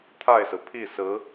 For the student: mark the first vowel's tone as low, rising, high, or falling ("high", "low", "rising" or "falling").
falling